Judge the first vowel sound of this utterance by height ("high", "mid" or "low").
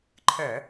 mid